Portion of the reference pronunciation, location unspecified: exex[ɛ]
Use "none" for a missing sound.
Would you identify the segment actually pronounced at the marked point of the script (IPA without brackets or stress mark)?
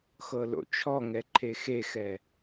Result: ɛ